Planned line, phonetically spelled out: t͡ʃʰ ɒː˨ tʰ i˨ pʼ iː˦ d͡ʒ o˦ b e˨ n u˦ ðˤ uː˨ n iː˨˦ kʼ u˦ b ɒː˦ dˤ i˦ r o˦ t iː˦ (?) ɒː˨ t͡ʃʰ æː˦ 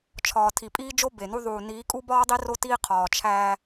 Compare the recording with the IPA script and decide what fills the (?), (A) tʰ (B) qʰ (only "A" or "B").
B